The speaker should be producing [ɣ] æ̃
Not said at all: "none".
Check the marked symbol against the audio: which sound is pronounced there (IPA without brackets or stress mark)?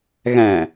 ɣ